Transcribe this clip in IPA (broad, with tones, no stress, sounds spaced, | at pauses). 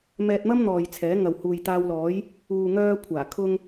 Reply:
m ɛː˧ t̚ m ɐ˥ m n̪ ɔː˨ j t͡sʰ ɛː˨˥ ŋ ɐ˨ w h uː˨ j t̪ aː˧ w l ɔː˨˥ j | uː˨ ŋ œː˧ kʷʰ aː˨˩ kʰ ʊ˧ ŋ